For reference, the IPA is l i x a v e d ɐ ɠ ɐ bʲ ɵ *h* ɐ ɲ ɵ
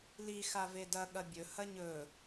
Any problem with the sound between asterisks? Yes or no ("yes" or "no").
no